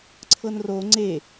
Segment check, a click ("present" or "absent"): present